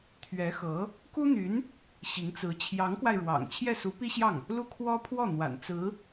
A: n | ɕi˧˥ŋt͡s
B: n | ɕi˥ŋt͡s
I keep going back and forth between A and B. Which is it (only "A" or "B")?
A